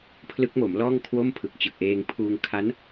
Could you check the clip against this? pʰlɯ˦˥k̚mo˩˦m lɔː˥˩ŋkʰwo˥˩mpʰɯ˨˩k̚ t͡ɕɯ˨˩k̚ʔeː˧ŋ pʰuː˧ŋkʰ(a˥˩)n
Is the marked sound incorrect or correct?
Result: incorrect